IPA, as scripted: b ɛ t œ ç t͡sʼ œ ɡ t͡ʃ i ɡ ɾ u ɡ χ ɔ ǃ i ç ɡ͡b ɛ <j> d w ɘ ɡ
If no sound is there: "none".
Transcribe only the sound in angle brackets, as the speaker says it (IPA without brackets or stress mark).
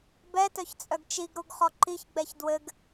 ç